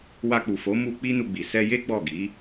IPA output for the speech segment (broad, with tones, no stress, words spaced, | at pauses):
wa˧k͡pu˨fo˨˦ mu˧ k͡pi˦nu˧ɡ͡bi˨ sɛ˧je˦ ɡ͡bɔ˦˨ ɡi˨˦